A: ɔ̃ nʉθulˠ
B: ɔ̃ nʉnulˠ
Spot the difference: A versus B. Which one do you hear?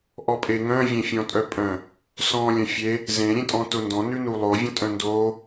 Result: B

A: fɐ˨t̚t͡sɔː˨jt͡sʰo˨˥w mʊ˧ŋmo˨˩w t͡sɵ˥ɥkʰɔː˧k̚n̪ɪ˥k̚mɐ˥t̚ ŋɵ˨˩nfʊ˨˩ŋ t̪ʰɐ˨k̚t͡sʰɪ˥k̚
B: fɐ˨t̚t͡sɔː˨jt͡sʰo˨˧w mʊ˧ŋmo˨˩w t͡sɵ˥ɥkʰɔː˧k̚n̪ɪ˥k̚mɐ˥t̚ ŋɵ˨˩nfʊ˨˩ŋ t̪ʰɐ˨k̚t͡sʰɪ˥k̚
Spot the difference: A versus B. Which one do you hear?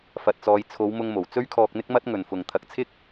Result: B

